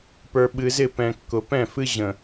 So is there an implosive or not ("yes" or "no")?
yes